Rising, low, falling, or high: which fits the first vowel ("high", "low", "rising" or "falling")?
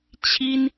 high